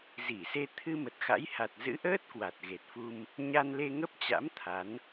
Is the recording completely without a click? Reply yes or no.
yes